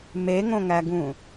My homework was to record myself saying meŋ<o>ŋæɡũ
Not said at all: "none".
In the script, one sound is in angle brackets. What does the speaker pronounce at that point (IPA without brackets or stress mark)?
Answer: õ